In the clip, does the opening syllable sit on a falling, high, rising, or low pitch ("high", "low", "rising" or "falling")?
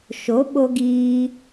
rising